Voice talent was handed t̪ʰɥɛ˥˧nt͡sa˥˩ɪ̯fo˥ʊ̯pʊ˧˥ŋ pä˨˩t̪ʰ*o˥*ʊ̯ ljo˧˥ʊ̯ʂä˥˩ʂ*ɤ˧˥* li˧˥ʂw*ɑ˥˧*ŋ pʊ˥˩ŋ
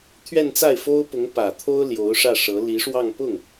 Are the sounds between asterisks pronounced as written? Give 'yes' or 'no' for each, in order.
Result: yes, yes, yes

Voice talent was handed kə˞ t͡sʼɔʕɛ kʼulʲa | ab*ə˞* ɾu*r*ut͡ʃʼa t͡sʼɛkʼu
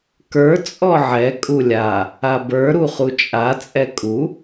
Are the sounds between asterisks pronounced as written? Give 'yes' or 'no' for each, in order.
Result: yes, no

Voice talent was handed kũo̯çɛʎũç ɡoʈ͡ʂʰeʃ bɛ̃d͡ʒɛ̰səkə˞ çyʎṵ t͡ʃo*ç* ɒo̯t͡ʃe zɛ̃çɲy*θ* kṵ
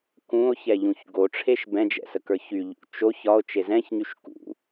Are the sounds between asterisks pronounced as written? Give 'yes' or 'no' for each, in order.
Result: yes, no

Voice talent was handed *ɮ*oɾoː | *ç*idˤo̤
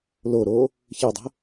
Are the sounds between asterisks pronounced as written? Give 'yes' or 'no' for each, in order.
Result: no, yes

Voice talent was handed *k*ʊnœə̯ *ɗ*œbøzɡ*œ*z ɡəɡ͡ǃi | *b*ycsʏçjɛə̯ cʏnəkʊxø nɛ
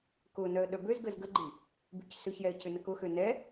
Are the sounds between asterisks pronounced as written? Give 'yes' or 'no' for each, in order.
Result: yes, yes, no, yes

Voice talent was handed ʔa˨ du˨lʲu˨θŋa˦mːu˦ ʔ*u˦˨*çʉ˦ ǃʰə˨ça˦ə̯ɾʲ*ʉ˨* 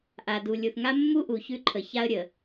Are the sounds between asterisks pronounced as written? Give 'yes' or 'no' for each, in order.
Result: no, no

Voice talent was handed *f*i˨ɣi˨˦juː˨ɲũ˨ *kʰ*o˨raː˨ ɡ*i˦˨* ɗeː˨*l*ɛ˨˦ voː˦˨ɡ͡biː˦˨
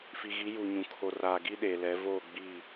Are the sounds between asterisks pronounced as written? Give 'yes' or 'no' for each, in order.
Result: yes, yes, no, yes

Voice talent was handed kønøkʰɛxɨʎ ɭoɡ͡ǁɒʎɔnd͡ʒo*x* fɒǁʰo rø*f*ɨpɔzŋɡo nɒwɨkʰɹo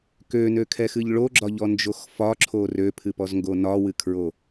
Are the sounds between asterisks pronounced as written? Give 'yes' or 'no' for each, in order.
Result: yes, no

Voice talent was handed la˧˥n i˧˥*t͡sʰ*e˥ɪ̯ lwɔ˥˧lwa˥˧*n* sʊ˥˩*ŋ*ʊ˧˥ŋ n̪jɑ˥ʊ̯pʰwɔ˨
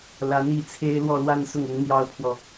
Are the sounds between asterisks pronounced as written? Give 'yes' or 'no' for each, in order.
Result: yes, yes, yes

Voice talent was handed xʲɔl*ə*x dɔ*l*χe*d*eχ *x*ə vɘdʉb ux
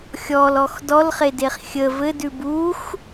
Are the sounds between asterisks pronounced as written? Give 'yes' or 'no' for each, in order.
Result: no, yes, yes, no

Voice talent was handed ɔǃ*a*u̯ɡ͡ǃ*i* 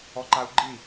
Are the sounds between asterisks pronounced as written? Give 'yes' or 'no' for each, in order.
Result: yes, yes

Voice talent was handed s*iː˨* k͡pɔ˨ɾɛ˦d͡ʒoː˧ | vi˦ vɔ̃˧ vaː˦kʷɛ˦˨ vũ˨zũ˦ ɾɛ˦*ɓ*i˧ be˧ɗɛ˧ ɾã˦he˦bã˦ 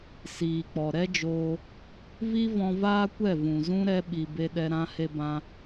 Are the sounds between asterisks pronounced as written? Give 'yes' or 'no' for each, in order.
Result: yes, yes

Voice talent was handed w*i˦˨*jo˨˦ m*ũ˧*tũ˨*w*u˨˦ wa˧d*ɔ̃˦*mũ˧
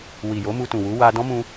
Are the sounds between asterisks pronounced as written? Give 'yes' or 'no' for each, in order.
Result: no, no, yes, yes

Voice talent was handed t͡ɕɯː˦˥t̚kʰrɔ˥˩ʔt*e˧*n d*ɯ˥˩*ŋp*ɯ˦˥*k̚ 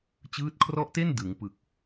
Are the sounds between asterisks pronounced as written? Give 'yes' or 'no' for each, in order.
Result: no, no, no

